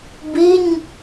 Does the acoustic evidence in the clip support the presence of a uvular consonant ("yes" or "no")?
no